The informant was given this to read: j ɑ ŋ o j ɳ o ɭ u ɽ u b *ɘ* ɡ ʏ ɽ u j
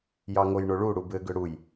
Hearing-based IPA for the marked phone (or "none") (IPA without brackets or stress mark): ɘ